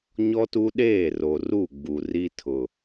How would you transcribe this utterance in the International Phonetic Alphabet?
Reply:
ɲ ɔ˦ t u˦ ɗ eː˦˨ r o˨ r u˦˨ ɡ͡b u˨ r i˦ tʰ ʊ˨

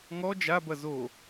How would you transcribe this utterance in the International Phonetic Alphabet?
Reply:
ŋ ɔ d͡ʒ a b ɐ z o

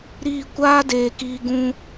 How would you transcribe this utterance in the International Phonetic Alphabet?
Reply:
ɾ iː˦˨ kʷ aː˦ d eː˨ k iː˧ ɡ ũ˧

